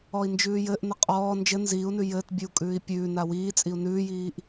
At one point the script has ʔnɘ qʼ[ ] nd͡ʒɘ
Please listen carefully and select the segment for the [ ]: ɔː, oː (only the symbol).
ɔː